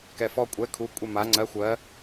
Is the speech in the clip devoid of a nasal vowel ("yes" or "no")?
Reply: yes